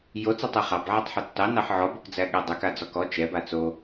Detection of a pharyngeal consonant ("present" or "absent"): present